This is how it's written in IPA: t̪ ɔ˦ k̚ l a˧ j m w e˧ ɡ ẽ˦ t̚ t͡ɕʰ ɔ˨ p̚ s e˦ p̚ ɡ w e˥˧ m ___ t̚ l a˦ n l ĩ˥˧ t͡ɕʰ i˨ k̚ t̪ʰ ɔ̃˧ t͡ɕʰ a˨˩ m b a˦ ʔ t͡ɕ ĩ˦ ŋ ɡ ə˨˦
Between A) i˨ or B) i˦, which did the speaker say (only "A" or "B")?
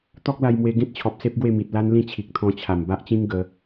A